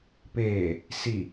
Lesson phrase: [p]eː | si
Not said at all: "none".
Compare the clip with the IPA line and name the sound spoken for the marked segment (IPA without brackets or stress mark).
p